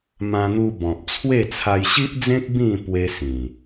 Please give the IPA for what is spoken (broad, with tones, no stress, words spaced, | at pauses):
mã˧n̪u˧ bɔ̃˨p̚t͡sʰwe˥˧ t͡sʰa˧jɕi˦ʔd͡zẽ˦k̚ bĩ˥˧ pwe˦sĩ˨˩